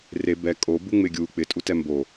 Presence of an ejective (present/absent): present